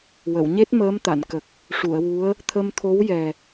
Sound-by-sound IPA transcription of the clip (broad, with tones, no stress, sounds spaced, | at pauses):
w ə˨˩˨ w ɲ e˦˥ t̚ m əː˧˥ m t̪ a˨˩˨ n k ə˨˩ k̚ | ʂ u˨˩˨ ə̯ w u˧˥ ə̯ | t̪ʰ ə˧ m t̪ʰ o˧˥ w j ɛ˨˩